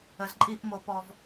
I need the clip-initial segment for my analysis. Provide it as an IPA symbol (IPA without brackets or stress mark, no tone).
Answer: ə